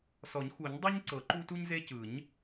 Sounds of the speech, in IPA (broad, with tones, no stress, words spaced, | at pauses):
sɔ˨˩˦ɲxu˨˩˦ɲ dˤo˦ɲ ǀɤ˨˩˦ ǃu˦tu˦ɲze˦ cɯ˨˩˦ɲ